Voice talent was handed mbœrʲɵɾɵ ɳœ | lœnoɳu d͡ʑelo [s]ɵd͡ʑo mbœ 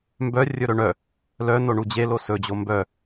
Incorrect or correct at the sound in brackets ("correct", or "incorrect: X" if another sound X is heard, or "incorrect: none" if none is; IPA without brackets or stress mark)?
correct